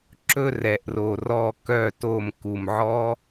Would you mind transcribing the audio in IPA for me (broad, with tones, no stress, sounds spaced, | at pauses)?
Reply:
ǁ ɵ˥˧ r ɛ˩ ʔ r o˩ r ɔ˧˩ k œ˧˩ t o˧˩ m k u˩ m ʕ ɔ˦˥